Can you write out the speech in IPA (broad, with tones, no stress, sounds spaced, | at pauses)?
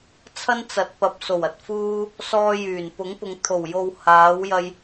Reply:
t͡sʰ ɐ˥ n t͡s ɐ˨˥ t̚ p ɐ˨ p̚ s o˨˩ w ɐ˨ t̚ f uː˧ | s ɔː˧ j yː˨˩ n p ʊ˨˥ ŋ p ʊ˨˧ ŋ t̪ʰ o˨˩ w j o˨ w h aː˨˥ w j ɐ˧ j